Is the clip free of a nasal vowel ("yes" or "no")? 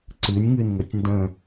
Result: no